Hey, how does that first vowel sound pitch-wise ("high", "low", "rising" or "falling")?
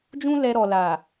high